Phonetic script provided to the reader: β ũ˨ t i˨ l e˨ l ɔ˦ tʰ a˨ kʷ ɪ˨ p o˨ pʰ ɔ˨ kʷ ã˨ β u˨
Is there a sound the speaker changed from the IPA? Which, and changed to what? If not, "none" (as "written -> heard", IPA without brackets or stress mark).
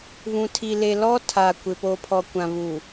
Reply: t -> tʰ